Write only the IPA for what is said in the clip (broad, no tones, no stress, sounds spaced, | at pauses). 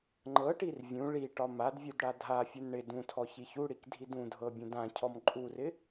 ŋ͡ǃ ɤ ʈ i r vʲ ũ ɭ i ʈ ɒ m a d vʲ u d ɽ a dʱ a fʲ u n ɳ ɪ d ũ tʰ ɔ ç i ç u ɽ i k dʱ i d ũ dʱ ɤ bʲ ũ d ã cʰ ɔ m ǃʼ u r ɪ